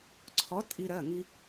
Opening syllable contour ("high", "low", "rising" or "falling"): rising